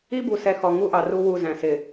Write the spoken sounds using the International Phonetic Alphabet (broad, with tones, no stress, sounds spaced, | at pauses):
i˦ b u˨ s ɛ˨ x ɔ˨ ŋ u˦ ʔ ɑ˨ r u˦ w u˦˨ z æ̃˨ s ɪ˨